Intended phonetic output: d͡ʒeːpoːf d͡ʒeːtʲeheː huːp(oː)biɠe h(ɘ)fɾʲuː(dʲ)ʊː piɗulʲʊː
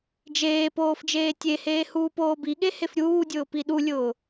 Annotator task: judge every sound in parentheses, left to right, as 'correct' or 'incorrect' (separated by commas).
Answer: correct, incorrect, correct